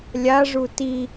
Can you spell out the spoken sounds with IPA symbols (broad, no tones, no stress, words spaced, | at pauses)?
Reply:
lʲaʐu ti